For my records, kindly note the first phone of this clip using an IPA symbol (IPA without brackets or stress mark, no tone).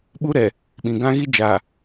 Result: ɓ